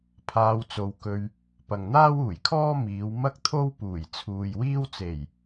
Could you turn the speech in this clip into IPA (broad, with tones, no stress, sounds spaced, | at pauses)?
pʰ aː˧ w t͡s o˨ w k ɵ˧ ɥ | p ɐ˨ ŋ n̪ aː˥ w uː˨˩ j kʰ ɔː˥ m iː˨˧ w m ɐ˥ k̚ t̪ʰ o˥ w p uː˨˩ j t͡sʰ uː˨ j w iː˥ w t͡s e˨˩ j